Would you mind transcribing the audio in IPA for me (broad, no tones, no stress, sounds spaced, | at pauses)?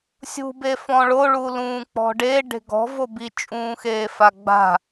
sʲ ṳ b e f ɔ̃ ɭ o ɭ u l ũː k͡p ɔ̤ ɖ e ɖ e̤ ɡ ɔ̤ v o b i t͡ʃʼ ũː x eː f a ɡ͡b a̤